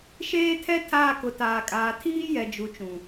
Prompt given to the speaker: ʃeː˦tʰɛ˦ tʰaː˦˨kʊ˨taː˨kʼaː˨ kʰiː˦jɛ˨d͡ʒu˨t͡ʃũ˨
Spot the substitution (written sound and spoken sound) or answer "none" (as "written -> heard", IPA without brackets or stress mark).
kʰ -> tʰ